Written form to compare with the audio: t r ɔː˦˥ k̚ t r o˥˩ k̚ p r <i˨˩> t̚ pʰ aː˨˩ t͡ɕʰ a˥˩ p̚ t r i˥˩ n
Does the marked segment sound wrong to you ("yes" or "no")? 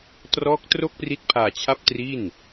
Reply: yes